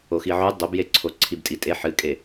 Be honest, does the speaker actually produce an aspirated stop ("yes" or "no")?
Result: yes